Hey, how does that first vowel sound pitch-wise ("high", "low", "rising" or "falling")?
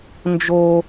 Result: low